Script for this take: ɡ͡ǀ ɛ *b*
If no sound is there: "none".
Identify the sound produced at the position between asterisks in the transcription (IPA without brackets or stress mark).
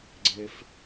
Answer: f